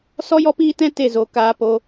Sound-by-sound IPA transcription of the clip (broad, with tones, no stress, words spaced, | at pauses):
sɔ˦jɔ˦piː˦tɛ̃˦ te˦˨zo˧ kaː˧po˧